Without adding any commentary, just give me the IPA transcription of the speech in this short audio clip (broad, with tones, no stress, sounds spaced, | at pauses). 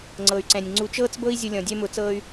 ŋ͡ǀ ɤ˨ y̯ ǀ ɛ̃˨ nʲ ŋ͡ǀ u˨ t͡ʃ ɤː˦ t͡s b ɤ˦ i̯ zʲ ʊ˦ lʲ ɔ̃˨ dʲ ɛ˦ m ʊ˨ t͡s ɤː˦ y̯